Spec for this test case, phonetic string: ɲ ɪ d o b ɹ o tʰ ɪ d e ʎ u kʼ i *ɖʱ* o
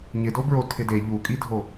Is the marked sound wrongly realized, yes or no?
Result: yes